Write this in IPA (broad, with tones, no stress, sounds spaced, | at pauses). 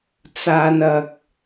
t͡s aː˨ n ɐ˨ k̚